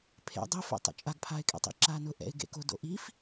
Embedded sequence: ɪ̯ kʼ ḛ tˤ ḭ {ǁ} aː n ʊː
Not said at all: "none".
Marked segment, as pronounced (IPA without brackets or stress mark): ǁ